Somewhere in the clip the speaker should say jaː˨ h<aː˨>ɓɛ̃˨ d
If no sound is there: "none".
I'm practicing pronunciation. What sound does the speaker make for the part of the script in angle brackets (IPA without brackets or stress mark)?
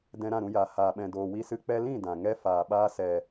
aː˨